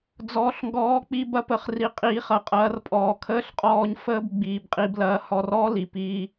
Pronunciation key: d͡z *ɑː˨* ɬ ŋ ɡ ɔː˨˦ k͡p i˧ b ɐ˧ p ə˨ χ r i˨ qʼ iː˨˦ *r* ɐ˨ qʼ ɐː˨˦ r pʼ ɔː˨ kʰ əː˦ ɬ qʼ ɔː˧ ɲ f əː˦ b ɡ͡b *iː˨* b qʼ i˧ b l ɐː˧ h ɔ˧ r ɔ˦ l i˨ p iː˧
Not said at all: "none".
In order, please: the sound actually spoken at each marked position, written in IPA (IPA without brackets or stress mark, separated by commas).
ɔː˨, χ, iː˨